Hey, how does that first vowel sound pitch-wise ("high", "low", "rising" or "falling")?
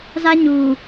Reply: high